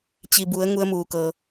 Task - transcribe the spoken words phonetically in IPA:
t͡ɕ i˩ b u˩˧ ə̯ ŋ u˧ ə̯ m uː˩ k ɤː˩

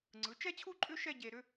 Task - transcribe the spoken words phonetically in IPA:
ŋ͡ǀ ɯ˩˧ t͡ʃ ɛ˥˧ t͡ɕʰ u˥˧ ǃʼ ʏ˥ ʃ ɛ˥˧ ɟ e˧ ɾ ʏ˥

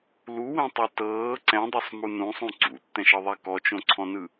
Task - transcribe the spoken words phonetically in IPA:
l u w ẽ tˤ u t ɤː ǀ ɛ̃ dˤ o sˤ m u n ũ sˤ ũ ǀ ṵ tː ɛ̃ ʃ ɤ ðˤ ɛ k ɔ t͡ʃ õ ǀʰ ɔ̃ n ɯ

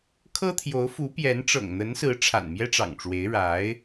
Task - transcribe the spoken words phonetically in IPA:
kʰ ɤ˥ t̪ʰ j o˧˥ ʊ̯ f u˧˥ p j ɛ˧˥ n ʈ͡ʂ ɤ̰˨˩ ŋ n̪ ə˧˥ n s ɹ̩˧˥ ʈ͡ʂʰ a̰˨˩ n m j ɛ˥ ʈ͡ʂ ɑ̰˨˩ ŋ ʈ͡ʂ w e˧˥ ɪ̯ ɻ a˧˥ ɪ̯

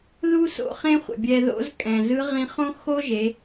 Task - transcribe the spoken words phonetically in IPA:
ð u˥ s o̰˧ χ ẽ˥ χʷ ɛ̰˩ bʲ ɛ˧ ð o̰˧˥ z kʼ ɛ̃˩ z ɯ˧˥ ʁ ĩ˧ χ õ˥ x o˥ ʒ e˩˧

